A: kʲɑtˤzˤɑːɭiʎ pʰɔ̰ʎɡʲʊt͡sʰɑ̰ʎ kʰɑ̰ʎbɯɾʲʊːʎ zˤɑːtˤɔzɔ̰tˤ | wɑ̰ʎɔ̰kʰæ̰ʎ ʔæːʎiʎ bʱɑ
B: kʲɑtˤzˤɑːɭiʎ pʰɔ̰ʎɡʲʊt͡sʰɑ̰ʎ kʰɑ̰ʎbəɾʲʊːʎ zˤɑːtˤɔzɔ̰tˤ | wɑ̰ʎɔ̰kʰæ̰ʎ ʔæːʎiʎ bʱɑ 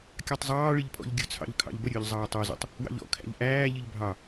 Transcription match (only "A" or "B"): B